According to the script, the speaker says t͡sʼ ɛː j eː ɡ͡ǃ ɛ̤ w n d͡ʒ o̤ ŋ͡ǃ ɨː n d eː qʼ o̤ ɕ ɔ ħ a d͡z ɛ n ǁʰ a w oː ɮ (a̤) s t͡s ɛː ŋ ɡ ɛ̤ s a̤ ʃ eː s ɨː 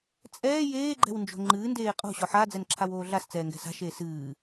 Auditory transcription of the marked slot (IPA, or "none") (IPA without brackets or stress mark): a